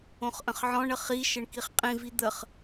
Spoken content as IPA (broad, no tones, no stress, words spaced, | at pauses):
õχʔə̃χʕɔ̃ɳə χiʃəɳ kiχqʼĩvi d̪əχ